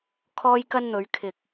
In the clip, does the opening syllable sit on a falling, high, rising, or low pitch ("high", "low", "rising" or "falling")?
high